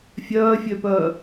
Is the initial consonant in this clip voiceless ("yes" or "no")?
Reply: yes